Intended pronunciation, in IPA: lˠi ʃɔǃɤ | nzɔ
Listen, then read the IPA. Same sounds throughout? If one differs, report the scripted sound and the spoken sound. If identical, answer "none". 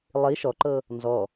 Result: none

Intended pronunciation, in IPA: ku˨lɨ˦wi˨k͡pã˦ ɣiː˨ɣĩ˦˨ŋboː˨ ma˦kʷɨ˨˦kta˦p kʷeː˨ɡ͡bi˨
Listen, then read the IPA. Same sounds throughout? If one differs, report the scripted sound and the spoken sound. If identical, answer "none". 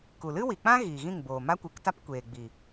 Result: none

